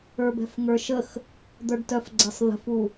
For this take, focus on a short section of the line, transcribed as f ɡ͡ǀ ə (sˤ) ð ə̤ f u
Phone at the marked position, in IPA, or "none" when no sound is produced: sˤ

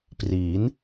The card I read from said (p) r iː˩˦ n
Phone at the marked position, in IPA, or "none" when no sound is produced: p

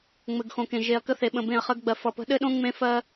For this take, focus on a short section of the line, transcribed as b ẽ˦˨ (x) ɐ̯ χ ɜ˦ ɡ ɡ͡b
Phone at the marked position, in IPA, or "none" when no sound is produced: none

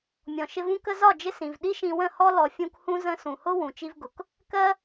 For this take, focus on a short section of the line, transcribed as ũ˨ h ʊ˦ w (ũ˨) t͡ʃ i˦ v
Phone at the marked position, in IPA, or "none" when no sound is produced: ũ˨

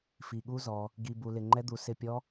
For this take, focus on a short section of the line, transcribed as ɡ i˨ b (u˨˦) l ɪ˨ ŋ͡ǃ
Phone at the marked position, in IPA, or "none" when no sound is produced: u˨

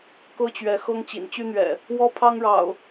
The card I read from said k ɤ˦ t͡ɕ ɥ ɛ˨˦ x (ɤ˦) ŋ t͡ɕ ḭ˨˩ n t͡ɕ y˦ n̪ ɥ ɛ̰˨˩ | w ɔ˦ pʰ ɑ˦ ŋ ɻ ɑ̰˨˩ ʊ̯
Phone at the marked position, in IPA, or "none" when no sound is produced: ɤ˦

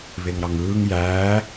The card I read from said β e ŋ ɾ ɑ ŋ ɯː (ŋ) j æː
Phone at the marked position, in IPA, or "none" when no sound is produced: ŋ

